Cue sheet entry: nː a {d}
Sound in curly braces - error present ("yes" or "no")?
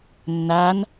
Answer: yes